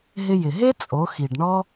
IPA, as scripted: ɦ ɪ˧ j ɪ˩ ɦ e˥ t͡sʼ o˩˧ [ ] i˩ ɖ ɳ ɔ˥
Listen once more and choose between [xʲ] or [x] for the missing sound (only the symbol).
x